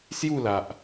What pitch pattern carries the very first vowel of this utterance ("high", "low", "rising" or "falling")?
falling